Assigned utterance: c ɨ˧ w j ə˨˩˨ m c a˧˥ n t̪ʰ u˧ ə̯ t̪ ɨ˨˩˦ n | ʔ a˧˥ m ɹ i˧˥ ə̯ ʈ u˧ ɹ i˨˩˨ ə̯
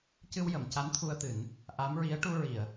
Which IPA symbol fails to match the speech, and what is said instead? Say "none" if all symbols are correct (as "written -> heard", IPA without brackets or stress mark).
none